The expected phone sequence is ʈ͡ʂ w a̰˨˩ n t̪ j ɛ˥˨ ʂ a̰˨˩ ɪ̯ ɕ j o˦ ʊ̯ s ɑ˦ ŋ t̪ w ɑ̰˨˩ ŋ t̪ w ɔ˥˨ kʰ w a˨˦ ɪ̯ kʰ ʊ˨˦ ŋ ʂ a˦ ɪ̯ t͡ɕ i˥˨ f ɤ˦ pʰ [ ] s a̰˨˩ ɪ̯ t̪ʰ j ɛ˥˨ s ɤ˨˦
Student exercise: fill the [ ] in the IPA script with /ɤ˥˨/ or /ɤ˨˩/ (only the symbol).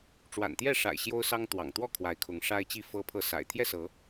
ɤ˥˨